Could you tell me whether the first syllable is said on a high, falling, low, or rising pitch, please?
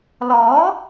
rising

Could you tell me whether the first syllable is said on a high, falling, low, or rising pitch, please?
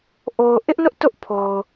low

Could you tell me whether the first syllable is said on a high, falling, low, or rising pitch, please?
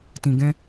low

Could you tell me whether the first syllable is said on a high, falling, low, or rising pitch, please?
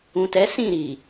low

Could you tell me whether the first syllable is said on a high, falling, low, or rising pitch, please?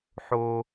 high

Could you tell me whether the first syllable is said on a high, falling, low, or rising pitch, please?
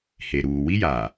low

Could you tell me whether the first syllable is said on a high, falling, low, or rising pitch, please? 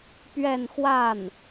falling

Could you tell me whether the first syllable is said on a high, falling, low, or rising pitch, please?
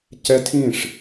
high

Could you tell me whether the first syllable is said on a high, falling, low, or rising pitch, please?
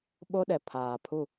high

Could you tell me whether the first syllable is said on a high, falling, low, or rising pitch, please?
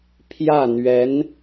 falling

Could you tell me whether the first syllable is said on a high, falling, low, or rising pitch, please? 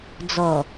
low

